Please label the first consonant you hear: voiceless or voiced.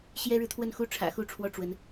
voiceless